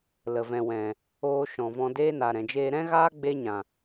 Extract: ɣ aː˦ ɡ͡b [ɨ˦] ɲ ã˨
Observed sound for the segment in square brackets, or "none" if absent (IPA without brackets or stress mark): e˦